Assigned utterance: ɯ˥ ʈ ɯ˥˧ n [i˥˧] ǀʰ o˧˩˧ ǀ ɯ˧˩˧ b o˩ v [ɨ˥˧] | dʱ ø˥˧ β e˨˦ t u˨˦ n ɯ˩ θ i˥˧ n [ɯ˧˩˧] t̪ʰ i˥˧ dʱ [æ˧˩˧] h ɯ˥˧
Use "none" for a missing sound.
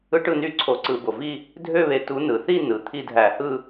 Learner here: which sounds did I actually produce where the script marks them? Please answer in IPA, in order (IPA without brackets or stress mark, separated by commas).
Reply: y˥˧, i˥˧, ɯ˩, æ˧˩˧